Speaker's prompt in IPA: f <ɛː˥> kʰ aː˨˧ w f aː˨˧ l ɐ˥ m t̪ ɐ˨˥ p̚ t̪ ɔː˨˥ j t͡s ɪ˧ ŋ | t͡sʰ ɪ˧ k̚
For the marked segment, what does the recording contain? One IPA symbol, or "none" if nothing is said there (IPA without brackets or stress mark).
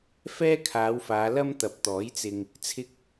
ɛː˥